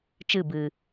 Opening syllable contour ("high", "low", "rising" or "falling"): falling